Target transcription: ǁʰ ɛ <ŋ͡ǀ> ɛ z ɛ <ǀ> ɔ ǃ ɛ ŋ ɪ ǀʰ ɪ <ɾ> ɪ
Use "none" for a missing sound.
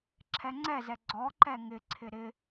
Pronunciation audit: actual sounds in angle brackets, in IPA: ŋ͡ǀ, ɡ͡ǀ, ɾ

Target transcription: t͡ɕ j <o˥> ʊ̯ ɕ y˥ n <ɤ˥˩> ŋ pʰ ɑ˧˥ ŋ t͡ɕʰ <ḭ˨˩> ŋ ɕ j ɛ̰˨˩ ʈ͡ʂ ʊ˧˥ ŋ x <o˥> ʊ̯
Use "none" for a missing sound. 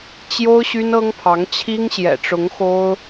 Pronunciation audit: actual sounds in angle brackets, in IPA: o˥, ɤ˥, i˥, o˥

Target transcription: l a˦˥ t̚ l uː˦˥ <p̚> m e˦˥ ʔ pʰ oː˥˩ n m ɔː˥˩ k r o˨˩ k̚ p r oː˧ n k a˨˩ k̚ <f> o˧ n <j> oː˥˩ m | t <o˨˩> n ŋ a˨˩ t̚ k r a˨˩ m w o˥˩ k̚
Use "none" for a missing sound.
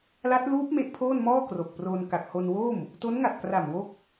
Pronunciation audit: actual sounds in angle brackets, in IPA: p̚, h, w, o˦˥

